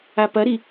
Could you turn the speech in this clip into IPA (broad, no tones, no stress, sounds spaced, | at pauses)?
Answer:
a p ɐ ɾ i